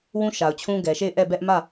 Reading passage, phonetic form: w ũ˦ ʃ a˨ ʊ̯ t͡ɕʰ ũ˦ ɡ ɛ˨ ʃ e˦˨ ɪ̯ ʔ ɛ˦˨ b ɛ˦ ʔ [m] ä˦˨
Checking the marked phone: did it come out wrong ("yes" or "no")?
no